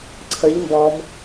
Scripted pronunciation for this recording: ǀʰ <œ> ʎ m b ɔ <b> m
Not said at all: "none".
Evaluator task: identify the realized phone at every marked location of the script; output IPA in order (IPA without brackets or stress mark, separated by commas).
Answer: ə, none